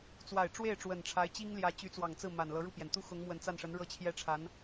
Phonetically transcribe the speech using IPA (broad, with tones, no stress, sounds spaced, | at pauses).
t͡s w a˨˩ ɪ̯ ʈ͡ʂ w e˥˩ ɪ̯ ʈ͡ʂ w ə˨˩ n ʈ͡ʂʰ a˧˥ ɪ̯ t͡ɕ i˥ ŋ l j ä˧˥ t͡ɕ y˧˥ t͡s w ɑ˨˩ ŋ t͡s ɹ̩˥˩ m a˨˩ n l ɤ˧˥ ɻ u˥˩ p j ɛ˩ n t̪ u˥˩ x ʊ˧˥ ŋ m w ə˨˩ n t͡s a˥˩ n ʂ ə˧˥ n ɻ ɤ˥˧ t͡ɕʰ j ɛ˥˩ ʈ͡ʂʰ a˧˥ n